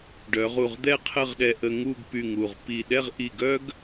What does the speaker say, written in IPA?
ɖ œ˩˧ ʁ u˧˩ ʁ d̪ ɛ˥ qʰ ə˥˧ ʁ ɗ ɛ˧ ʔ ə˧ ŋ u˥˧ ɡ p y˧˩ ŋ u˧˩ ʁ p i˧˩ ɗ ɛ˥˧ ʁ ʔ i˧˩ ɡ œ˥ ɡ

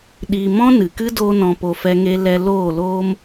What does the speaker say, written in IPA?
ɗ i˧ m ɔ̃˦ n ɨ˨ k ɨ˦ d o˦ n ɔ̃˧ p o˧ f ɛ˦ ŋ e˦ l ɛ˧ l oː˦˨ l oː˦ m

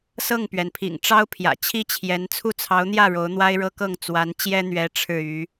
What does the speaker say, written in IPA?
s ɤ˥˩ ŋ p ɥ ɛ˩ n pʰ ḭ˨˩ ŋ ʈ͡ʂ ɑ˥ ʊ̯ pʰ j ä̰˨˩ t͡ɕʰ i˥ t͡ɕʰ j ɛ˧˥ n t͡sʰ u˥˩ t͡sʰ ɑ˧˥ ʊ̯ n̪ j ä˥˩ ɻ o˧˥ ʊ̯ n̪ w a˥ ɪ̯ ɻ ɤ˥ k ɤ˥˩ ŋ t͡s w a˧˥ n t͡ɕ j ɛ˥ n̪ ɥ ɛ˧˥ ʈ͡ʂʰ ɻ̩˥˩ y˧˥

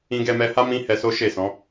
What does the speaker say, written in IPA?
ĩ˧ ɡ ɛ˧ m ɛ˧ h a˦ m ĩ˦ h ɛ˧ s o˦ ʃ e˦˨ s ɔ̃˨˦

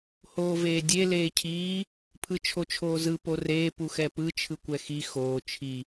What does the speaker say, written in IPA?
h oː v eː dʲ e l eː cʰ iː | pʰ ɯ t͡ʃʰ o t͡ʃʰ oː z ɯ p o r eː p u x ɛ p ɯ t͡ʃʰ ɯ kʷ ɛ x i x oː t͡ʃʰ i

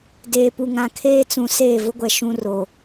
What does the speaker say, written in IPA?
d eː˨ p u˨ ŋ ã˨ kʰ eː˦ t͡s ũ˨ s eː˦˨ v ʊ˦ ɡʷ ɛ˨ ʃ ũ˦ r o˨

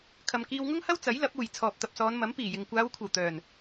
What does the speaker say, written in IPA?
kʰ ɐ˨ m k iː˧ w ŋ ʊ˥ ŋ h ɐ˥ w t͡s ɐ˨˥ j l ɐ˨˥ p̚ uː˨˩ j t͡sʰ ɔː˨ p̚ t̪ ɐ˨ p̚ s ɔː˨˧ n m ɐ˨˥ m p iː˨˩ j ɪ˨ ŋ kʷ aː˨˧ w kʷʰ ɐ˨˩ w t̪ œː˨˩ n

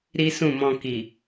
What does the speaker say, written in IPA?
ɾ i˦ s ũ˦˨ m ɔ̃˧ k i˨

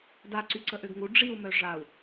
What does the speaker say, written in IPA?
d a ǀ y ǀ ə ʔ ø ɡ ŋ u ɖ͡ʐ i u̯ m œ ʐ a u̯

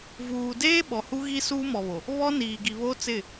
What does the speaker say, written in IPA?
v uː˨ d eː˦ ɓ ɔ˨ h u˦ ɣ i˦ s uː˦ m ɔ˨ β o˨ | β ɔ˦ n iː˨ ɡ i˨ β o˦ t͡s ɪ˦˨

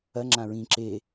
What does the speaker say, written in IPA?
ɐ ŋ͡ǁ ã ɹ ĩ ǁ e

